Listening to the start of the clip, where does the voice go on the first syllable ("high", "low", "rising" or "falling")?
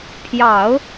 low